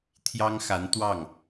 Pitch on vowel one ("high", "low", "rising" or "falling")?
high